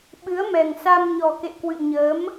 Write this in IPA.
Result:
ɓ ɨ˨˦ ə̯ m ɛ˨˩ ŋ s a˧ m ɲ ɔ˨˩ k ḛ˧˨ k w ɨ̰˧˨ ɲ əː˨˦ m

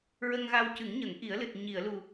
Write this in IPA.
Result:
ɹ ə˧ ŋ ɣ a˧ w c ɨ˨˩˦ ŋ ɲ ə˨˩˦ ŋ ʔ i˨˩˦ ə̯ l ɨ˨˩ t̚ ɲ i˨˩˨ ə̯ l u˨˩

